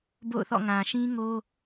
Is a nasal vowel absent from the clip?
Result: no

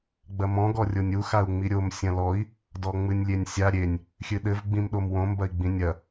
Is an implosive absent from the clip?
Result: no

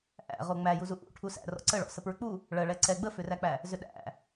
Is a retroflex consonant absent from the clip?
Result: no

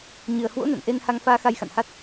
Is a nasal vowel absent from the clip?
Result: yes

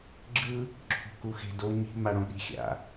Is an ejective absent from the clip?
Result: yes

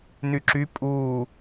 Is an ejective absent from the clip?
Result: no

